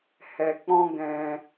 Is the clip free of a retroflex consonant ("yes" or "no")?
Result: yes